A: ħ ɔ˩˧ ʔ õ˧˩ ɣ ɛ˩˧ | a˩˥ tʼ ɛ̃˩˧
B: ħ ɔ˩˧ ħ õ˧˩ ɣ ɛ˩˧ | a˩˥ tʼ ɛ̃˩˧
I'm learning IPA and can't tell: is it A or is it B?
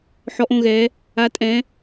A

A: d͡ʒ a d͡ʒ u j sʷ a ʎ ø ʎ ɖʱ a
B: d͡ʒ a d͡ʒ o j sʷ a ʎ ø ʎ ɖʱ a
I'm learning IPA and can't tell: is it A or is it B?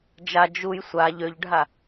A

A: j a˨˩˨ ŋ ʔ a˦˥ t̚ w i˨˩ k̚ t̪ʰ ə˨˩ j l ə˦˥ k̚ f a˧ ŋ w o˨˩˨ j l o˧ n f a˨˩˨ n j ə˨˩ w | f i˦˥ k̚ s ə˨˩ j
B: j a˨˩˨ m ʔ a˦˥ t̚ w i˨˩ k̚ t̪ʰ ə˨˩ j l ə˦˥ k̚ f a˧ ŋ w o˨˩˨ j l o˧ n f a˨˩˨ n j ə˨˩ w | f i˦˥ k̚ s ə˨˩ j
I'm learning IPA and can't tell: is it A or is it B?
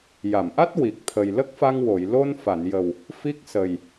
B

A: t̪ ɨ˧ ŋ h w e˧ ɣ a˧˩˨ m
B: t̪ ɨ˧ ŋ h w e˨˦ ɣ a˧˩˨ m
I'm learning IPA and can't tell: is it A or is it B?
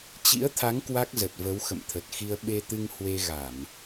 A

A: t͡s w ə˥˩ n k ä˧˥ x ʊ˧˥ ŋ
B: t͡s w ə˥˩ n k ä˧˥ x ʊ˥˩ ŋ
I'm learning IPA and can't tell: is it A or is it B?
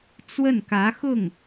B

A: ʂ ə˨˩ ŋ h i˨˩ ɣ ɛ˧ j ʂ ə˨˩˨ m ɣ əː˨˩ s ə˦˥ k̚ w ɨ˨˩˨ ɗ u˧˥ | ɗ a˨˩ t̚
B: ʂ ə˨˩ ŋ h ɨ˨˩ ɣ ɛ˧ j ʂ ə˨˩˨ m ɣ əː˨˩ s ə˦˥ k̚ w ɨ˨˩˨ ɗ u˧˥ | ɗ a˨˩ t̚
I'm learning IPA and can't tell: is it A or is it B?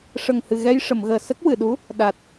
B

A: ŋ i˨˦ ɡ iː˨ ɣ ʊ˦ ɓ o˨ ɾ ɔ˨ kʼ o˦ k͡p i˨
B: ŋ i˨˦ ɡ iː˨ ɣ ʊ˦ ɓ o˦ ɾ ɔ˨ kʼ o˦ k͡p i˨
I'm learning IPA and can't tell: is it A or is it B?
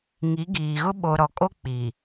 A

